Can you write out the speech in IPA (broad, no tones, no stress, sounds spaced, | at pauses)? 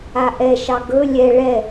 a ʔ ɛ ʃ ɑ ɡ ɵ lʲ ɛ ɭ ɛ